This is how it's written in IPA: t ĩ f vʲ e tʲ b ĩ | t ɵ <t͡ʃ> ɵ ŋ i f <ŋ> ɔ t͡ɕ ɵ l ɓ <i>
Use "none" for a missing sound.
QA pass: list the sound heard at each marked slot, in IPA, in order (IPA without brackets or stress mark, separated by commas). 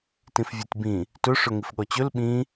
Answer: ʂ, ɠ, ĩ